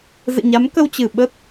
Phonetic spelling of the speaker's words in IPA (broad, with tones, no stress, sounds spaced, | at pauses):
z ɨ̰˧˨ ɲ a˨˦ m k ə˧ w t͡ɕ ɨ˧˩ ɓ ə˦˥ t̚